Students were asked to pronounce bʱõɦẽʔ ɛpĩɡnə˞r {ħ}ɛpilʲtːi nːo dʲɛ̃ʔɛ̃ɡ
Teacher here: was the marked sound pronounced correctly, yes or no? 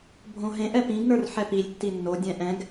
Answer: yes